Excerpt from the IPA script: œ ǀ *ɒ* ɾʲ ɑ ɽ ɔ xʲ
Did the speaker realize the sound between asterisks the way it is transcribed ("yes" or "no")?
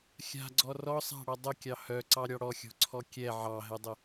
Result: no